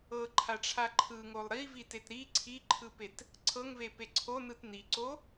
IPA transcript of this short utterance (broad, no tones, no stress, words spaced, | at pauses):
ɤǃʰaʈ͡ʂʰa ǃʰɯŋolˠ ɾivitet ɾi ǀʰiǃʰɯpet | ǀʰɤŋvepe ǀʰonɯt niǀo